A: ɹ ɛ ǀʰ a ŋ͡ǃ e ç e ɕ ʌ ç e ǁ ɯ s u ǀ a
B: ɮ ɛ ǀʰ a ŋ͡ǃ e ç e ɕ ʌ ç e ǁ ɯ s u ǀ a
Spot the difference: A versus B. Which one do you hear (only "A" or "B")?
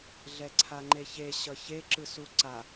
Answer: B